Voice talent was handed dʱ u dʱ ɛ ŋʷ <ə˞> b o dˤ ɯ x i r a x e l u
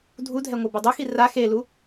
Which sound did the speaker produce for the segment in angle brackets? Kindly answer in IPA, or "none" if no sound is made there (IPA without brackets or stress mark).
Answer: ɤ